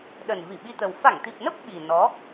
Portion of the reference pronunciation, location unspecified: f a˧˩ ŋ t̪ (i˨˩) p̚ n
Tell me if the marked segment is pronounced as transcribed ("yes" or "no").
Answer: yes